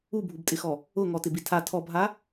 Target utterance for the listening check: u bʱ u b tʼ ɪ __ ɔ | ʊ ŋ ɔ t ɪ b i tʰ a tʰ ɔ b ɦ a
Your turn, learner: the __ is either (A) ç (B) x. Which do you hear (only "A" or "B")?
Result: B